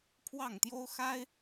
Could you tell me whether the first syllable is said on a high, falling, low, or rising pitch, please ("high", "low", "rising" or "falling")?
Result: falling